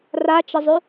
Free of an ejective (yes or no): yes